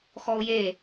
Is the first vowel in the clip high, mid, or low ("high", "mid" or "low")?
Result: mid